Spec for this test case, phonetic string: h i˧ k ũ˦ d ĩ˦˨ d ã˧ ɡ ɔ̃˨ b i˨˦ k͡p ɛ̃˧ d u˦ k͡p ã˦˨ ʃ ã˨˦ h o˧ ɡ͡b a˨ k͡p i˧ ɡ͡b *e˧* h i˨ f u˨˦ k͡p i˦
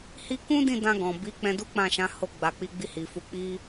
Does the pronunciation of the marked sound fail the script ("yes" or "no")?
yes